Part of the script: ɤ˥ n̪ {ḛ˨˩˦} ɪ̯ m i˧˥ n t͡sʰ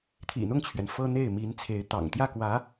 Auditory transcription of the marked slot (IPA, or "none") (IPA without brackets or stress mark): e˥˩